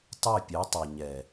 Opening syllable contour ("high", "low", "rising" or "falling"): falling